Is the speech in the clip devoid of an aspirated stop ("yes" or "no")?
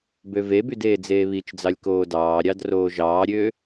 yes